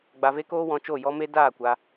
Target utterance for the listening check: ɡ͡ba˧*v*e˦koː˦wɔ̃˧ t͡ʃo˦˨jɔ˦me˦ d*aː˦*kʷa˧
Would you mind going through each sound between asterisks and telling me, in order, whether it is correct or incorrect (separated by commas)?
correct, incorrect